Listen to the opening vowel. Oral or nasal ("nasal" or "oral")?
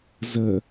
oral